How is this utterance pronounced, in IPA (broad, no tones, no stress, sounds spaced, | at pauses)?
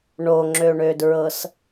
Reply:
ɳ o ŋ͡ǁ ø ɳ ø d ɹ ɤ s